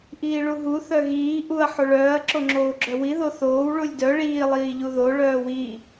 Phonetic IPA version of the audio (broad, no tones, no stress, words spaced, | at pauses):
ʔiːɭuɦu θœɣiː ʔuɐ̯ ħoɭœːɐ̯ ǁoŋ͡ǁoːɡ͡ǁœwi ðoθoːw ɭulʲdœ ɭiː lˠiːʎuðo ɭœːwi